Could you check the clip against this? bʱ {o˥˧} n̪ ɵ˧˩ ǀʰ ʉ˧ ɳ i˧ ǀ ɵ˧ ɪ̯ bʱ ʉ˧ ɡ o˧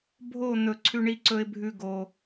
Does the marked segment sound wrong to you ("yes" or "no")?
no